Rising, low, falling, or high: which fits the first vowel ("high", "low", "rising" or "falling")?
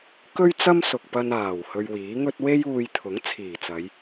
high